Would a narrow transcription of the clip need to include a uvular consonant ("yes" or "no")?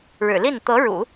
no